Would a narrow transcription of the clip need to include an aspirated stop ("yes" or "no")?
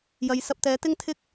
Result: yes